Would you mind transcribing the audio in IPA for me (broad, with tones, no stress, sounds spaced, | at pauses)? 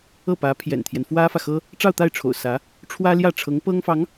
ɤ˥˩ p ä˧˥ pʰ j ɛ̰˨˩ n t̪ʰ j ɛ˦ n f w ä˥ f ä˨ x ɤ˥ | ʈ͡ʂ ɑ˥˧ ʊ̯ t̪ a˥˩ ɪ̯ ʈ͡ʂʰ o̰˨˩ ʊ̯ s ä˧˥ | ʈ͡ʂʰ w ä˥ l j ä˥˩ ʈ͡ʂʰ ɤ˧˥ ŋ p ɤ˥ ŋ f ɑ˧˥ ŋ